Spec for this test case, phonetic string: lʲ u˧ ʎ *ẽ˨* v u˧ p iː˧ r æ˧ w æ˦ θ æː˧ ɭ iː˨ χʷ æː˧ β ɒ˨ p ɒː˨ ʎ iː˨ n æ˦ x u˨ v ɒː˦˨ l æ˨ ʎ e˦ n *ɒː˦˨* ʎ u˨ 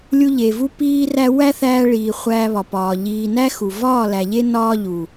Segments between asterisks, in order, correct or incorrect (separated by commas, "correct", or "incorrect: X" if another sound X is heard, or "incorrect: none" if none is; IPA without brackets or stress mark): incorrect: e˨, incorrect: ɒː˦